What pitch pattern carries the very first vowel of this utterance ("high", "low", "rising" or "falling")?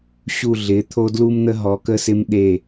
falling